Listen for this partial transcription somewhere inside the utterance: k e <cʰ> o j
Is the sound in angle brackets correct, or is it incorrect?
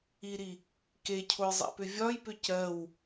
correct